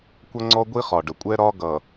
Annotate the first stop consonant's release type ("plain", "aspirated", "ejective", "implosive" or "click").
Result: plain